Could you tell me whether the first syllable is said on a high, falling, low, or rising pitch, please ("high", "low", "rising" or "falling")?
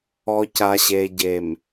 low